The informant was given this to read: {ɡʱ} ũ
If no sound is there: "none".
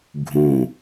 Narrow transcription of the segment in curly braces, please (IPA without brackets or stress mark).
ɡʱ